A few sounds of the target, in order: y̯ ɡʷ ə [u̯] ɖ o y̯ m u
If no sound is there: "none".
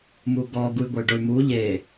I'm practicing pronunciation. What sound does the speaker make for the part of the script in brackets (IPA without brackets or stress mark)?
y̯